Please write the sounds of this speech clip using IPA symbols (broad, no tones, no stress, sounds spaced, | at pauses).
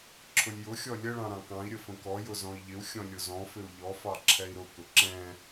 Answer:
ǁʰ ʊ lʲ j ʊ xʲ ɔ lʲ ə ɭ ɑ̃ ɾ ɑ̃ k ɑ̃ i̯ ɾʲ ə f ə̃ k ɔ j ʊ z ɔ̃ i̯ ʎ ɪ u̯ xʲ ɔ̃ lʲ ʊ z ɔ̃ f ɪ u̯ ʎ ɔ f ɑ ǁʰ ɛ i̯ ɾ ʊ k ʊ ǁ ɛ̃